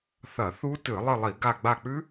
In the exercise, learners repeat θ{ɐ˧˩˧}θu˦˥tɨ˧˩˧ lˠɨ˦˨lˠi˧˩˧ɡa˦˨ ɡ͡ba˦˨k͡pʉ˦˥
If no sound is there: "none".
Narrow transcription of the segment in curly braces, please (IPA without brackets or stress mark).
ɐ˧˩˧